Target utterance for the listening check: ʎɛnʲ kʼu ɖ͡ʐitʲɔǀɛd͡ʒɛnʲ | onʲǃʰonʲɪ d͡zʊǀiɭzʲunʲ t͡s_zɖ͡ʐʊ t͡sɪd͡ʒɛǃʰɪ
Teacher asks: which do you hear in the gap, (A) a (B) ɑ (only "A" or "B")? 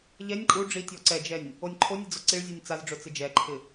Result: A